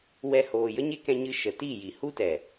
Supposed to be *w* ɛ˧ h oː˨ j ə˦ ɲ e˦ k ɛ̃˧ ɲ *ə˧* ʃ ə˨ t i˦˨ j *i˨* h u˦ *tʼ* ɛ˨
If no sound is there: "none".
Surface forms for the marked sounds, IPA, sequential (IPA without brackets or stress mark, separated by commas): w, ɨ˧, i˨, t